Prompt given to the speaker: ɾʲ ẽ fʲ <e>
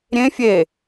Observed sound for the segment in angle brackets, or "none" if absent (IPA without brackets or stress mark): e